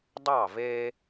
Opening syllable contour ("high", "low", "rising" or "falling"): falling